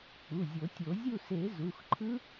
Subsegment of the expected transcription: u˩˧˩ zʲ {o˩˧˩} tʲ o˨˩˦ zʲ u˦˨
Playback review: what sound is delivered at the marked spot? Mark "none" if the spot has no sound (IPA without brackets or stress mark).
o˨˩˦